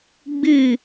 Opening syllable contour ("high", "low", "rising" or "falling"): falling